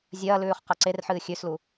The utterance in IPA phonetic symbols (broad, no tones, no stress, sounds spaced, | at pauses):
zʲ ɐː l ʉː χ q a ǀ e r ħ ɨː xʲ ʉ s l u